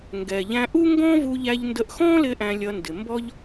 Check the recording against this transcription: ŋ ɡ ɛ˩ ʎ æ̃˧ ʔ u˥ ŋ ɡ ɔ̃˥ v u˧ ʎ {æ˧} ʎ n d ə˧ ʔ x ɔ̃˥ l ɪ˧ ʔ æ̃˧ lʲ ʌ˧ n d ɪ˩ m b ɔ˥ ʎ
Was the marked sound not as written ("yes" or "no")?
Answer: no